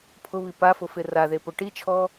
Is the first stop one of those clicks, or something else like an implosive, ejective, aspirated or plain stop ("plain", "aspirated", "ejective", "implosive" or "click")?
aspirated